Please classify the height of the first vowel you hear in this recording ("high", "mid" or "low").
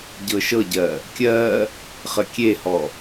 mid